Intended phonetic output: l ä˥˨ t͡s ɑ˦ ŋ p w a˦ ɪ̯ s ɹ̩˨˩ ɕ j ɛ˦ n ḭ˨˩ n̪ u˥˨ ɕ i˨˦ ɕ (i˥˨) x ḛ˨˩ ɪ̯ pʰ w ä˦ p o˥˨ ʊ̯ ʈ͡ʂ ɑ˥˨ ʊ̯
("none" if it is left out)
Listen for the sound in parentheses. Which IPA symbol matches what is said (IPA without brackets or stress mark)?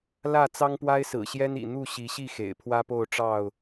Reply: i˥˨